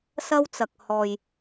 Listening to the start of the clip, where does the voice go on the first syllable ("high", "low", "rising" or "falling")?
high